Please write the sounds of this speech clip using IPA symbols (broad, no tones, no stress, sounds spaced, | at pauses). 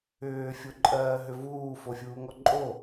ʏː fʲ o ǃʼ ɜː ɦ ʏ v uː f o fʲ uː ŋ ɔ ǃʼ o